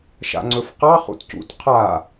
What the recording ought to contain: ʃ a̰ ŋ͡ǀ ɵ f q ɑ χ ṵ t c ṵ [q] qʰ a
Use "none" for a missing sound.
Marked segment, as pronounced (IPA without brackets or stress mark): t